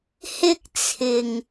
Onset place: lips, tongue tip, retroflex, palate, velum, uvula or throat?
throat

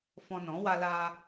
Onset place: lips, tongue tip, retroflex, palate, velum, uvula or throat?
lips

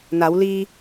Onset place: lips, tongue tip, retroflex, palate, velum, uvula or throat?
tongue tip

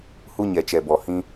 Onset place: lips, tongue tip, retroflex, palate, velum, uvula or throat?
throat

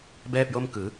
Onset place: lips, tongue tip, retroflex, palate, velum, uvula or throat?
lips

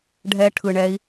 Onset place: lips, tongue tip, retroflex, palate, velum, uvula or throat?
retroflex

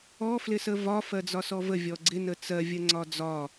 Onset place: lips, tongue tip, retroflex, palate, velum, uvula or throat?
lips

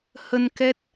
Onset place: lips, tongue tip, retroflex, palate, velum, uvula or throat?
throat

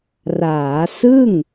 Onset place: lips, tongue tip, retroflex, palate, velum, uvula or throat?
tongue tip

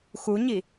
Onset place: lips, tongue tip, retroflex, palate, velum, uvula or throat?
velum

